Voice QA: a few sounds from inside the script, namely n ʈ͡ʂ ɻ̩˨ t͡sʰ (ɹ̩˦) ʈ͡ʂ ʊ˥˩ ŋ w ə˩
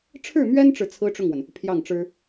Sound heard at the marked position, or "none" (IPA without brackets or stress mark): ɹ̩˥